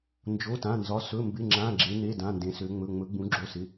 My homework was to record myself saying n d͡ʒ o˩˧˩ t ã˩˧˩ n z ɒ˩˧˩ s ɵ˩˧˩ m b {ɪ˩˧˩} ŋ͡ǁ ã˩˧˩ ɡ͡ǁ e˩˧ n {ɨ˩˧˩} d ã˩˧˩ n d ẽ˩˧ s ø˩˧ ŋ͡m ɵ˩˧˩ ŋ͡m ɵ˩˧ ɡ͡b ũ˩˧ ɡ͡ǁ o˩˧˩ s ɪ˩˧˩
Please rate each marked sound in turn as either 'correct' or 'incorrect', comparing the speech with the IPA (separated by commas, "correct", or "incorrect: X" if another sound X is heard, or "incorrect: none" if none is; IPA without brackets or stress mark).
correct, incorrect: e˩˧˩